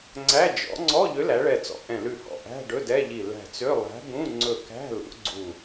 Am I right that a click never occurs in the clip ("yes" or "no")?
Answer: no